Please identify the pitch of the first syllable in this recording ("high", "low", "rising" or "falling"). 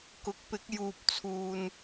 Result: rising